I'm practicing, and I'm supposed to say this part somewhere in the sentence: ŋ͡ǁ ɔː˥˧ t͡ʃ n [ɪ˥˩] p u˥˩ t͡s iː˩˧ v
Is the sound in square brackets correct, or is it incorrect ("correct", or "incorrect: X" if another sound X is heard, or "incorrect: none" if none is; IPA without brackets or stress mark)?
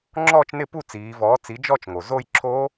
correct